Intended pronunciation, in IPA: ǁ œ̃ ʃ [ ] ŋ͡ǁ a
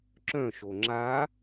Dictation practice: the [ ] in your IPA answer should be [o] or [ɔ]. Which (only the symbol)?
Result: o